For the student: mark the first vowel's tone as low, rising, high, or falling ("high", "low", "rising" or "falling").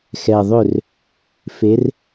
low